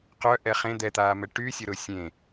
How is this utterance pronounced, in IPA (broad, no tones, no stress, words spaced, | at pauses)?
qœ ʔɛχẽ d̪ɛt̪aːmɛ ʈy sʲoɾʊ sʲẽ